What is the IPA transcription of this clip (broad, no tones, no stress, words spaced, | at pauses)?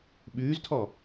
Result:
ɓʉːztʰɔ